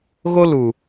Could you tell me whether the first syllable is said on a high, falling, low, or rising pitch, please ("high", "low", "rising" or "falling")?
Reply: high